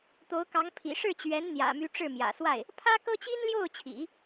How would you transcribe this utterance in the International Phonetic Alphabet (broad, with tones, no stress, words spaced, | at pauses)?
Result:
t̪o˧˥ʊ̯kɑ˧˥ŋ pʰḭ˨˩ʂɻ̩˥˩t͡ɕɥɛ˧˥n n̪jä̰˨˩my˧˥ ʈ͡ʂɻ̩˥˩mjä̰˨˩swa˥˩ɪ̯ | pʰä˥kɤ˥ t͡ɕi˥nljo˥˩ʊ̯t͡ɕʰḭ˨˩˦